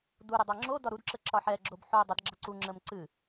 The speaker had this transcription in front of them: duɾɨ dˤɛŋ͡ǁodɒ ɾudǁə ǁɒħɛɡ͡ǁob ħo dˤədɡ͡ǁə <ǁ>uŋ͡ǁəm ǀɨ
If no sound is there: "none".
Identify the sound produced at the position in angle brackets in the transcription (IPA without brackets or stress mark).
ǀ